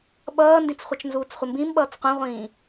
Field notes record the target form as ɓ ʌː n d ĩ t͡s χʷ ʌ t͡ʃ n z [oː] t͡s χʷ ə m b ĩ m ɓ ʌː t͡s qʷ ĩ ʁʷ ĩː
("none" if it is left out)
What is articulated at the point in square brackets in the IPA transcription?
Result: uː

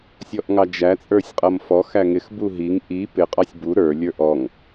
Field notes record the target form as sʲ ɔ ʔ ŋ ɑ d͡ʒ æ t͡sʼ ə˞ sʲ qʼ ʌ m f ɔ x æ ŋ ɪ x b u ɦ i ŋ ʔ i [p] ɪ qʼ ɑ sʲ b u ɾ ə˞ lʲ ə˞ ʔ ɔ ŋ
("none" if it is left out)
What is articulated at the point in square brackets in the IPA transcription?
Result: p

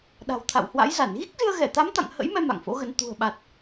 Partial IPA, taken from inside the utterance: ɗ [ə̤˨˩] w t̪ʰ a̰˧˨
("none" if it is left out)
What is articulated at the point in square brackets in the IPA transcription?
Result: a̤˨˩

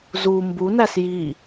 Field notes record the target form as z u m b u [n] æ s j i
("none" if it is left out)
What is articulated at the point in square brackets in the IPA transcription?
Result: n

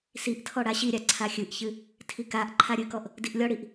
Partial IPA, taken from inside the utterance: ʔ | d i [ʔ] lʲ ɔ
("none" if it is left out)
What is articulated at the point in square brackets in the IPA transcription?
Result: ʔ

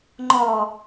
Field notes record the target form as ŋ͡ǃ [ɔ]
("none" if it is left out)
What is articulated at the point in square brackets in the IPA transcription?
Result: ɔ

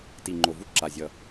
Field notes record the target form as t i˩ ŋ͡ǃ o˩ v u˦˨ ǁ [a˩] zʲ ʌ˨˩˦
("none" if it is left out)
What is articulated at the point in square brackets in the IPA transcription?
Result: a˩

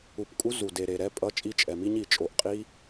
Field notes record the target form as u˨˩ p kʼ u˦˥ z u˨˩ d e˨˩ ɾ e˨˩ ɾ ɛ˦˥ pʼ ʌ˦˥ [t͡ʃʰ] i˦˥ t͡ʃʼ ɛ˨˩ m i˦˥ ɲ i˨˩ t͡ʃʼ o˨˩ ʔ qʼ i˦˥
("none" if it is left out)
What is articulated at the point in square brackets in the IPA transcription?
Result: t͡ʃʼ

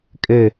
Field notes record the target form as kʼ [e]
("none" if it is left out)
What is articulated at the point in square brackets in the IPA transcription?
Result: ɘ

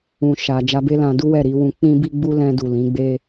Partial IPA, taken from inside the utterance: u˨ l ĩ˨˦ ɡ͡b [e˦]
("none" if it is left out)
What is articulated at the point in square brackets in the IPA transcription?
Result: e˦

